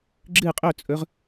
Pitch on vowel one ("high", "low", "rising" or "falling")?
falling